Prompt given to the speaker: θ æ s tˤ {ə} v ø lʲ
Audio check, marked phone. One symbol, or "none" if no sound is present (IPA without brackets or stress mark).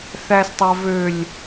a